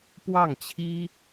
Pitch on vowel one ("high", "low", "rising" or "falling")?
falling